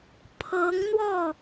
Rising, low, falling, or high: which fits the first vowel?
rising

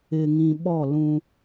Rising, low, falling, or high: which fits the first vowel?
low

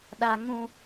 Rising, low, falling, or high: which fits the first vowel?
high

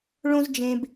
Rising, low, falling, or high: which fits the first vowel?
high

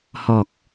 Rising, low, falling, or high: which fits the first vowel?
low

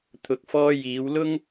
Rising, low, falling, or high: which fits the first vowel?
rising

